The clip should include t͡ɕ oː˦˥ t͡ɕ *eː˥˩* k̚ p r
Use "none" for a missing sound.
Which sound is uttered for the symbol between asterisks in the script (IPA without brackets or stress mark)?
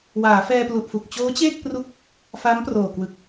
eː˥˩